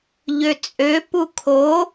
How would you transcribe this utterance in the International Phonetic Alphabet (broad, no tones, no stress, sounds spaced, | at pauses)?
ʎ ø t͡sʼ ø p u kʰ o